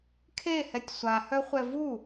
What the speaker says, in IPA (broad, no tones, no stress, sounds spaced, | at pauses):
kʰ e h ɛ tʲ sʷ a h œ χʷ ɛ v u